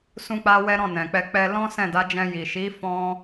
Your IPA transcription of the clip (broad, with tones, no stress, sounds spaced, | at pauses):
s ũ˦ k͡p a˦ w ɛ˦ ɾ ɔ̃˦˨ n ɛ̃˨ k͡p ɛ˧ k͡p ɛ˧ l ɔ̃˦ s ɛ̃˦˨ d a˨˦ d͡ʒ ɛ̃˧ j i˨ ʃ i˨˦ f ɔ̃˧